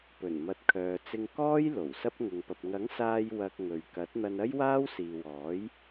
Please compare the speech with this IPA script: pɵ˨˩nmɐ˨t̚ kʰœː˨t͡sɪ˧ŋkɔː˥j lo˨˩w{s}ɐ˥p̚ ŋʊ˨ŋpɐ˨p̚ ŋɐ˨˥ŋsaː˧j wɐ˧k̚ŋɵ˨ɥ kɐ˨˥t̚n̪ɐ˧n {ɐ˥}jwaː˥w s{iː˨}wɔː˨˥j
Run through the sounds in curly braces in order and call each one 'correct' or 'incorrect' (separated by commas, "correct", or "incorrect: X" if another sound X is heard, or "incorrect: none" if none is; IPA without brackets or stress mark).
correct, correct, correct